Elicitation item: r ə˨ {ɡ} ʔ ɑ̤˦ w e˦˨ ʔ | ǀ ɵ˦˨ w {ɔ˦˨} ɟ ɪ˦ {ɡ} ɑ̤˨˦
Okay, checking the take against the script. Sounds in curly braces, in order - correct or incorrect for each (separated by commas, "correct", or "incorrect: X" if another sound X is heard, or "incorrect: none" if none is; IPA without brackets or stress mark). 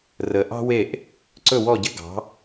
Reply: incorrect: none, correct, correct